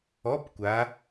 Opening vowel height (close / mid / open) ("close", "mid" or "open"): mid